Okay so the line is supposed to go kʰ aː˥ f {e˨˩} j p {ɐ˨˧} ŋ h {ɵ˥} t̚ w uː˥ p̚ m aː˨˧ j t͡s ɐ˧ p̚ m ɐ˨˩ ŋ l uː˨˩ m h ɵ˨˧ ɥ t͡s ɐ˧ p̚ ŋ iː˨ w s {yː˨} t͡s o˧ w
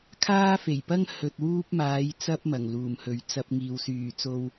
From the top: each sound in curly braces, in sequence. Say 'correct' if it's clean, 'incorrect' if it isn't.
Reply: correct, incorrect: ɐ˥, incorrect: ɵ˧, incorrect: yː˨˩

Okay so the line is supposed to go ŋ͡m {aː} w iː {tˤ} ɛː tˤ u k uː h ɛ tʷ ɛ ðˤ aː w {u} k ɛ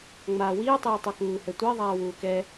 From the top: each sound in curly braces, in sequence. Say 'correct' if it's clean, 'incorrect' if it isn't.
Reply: correct, correct, incorrect: uː

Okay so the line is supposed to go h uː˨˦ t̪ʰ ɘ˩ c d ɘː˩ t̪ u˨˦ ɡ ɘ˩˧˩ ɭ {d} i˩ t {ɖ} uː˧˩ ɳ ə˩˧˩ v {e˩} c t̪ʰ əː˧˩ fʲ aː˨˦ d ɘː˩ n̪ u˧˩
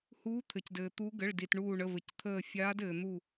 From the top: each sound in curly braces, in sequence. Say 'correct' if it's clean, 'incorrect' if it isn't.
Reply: correct, incorrect: ɳ, incorrect: ɘ˩

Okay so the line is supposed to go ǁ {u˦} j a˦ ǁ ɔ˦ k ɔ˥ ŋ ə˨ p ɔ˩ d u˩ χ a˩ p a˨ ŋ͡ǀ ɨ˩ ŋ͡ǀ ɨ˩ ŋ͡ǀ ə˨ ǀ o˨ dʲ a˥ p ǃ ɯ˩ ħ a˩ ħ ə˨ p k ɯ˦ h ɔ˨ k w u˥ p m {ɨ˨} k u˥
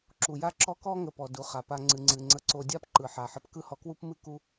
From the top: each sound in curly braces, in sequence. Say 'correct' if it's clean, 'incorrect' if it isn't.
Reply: incorrect: u˩, incorrect: ɨ˥

